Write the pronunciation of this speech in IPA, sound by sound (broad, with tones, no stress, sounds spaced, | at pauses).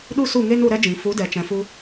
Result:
ɗ u˦ s u˦˨ ŋ e˦ n u˧ ɾ ɛ˦ d͡ʒ ĩ˨ f u˨˦ d ɛ˨ t͡ʃ ɛ̃˨ f u˧